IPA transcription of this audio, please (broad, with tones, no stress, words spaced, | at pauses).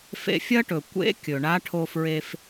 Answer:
fḛ˧fʲɐ˥ʈɵ˩ kʷḛ˧˥ kʲɵ˩ɳa˧˥ʈʰo˧fɹe˧f